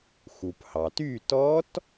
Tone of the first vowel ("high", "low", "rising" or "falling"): low